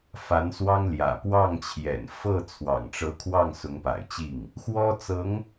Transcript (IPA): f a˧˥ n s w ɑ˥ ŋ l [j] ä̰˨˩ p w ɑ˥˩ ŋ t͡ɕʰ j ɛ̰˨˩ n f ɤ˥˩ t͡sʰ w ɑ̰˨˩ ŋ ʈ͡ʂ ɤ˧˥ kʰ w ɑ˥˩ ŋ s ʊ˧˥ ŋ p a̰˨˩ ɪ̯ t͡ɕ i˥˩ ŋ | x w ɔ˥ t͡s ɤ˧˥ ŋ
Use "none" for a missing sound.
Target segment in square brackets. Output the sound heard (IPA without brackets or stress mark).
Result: j